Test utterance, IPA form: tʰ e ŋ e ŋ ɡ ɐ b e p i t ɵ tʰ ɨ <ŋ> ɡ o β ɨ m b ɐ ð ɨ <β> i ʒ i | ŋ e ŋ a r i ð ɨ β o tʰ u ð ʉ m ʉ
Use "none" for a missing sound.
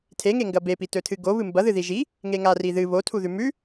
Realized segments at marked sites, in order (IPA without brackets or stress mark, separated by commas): none, ð